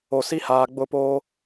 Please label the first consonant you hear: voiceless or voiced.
voiceless